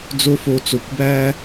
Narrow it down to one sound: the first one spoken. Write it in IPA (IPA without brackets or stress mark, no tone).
d͡z